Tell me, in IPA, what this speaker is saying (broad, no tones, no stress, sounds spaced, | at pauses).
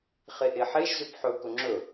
χ e ʔ e ħ e ʒ z ʏ p ħ ɵ k ɵ ŋ͡ǁ ɵ